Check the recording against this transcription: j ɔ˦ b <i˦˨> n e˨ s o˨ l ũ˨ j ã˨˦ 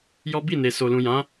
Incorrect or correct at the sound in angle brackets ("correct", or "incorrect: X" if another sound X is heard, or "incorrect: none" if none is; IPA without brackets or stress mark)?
correct